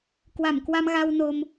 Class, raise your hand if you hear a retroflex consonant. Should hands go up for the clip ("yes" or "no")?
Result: no